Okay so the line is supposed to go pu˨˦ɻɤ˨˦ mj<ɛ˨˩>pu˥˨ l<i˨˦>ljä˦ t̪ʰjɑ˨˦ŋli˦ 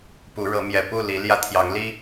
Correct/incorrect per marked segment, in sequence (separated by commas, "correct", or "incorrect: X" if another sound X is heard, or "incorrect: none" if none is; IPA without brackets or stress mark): correct, correct